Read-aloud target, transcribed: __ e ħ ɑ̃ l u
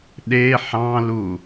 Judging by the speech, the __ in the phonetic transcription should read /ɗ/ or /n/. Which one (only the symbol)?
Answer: ɗ